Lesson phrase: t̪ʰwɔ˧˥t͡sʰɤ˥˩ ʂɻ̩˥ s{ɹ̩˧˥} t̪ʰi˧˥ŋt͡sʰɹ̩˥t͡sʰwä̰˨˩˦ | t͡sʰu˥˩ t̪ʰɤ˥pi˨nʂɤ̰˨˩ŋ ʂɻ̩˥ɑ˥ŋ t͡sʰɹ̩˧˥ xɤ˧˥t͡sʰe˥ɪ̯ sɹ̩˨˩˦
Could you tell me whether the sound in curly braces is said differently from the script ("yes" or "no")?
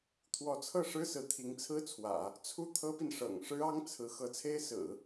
no